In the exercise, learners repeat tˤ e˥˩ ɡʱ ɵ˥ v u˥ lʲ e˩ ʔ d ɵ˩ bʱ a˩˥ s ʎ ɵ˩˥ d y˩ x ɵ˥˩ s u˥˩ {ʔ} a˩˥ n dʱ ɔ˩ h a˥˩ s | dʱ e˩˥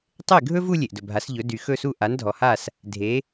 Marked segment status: correct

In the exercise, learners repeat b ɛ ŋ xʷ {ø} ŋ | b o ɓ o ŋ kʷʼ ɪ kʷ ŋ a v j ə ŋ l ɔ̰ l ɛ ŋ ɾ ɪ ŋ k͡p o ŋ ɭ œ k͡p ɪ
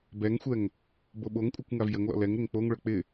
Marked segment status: incorrect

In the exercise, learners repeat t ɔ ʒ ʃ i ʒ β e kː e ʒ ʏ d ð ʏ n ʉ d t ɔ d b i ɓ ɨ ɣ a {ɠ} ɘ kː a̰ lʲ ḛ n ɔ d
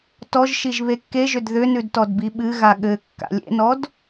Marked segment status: correct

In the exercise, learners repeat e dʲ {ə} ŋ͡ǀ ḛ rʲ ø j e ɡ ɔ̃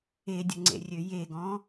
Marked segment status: correct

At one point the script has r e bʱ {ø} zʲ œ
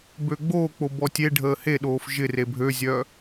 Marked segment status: correct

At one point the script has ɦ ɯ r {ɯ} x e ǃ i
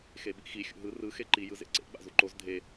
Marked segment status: correct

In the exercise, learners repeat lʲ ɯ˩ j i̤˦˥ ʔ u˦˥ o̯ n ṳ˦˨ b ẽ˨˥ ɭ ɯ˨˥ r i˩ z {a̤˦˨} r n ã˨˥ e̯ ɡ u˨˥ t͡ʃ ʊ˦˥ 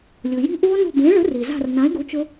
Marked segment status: correct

